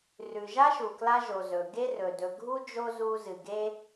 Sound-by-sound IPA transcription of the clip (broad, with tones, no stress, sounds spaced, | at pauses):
r ʉ˨ ʒ a˦ ʃ u˨ k l a˧ ʒ o˨ z ɵ˨ ɡ e˦ r ɵ˨ d ɵ˨ ɡʱ u˦ d͡ʒ o˦ z u˧ z ɨ˨ ɡ e˦